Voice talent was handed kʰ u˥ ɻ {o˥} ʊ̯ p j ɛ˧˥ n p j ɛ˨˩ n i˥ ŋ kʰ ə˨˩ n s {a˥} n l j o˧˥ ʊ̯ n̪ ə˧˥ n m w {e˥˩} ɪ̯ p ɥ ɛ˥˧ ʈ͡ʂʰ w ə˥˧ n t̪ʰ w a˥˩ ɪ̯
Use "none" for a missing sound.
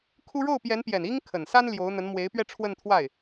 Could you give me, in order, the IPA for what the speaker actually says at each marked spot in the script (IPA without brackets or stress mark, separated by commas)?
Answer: o˥˩, a˥, e˧˥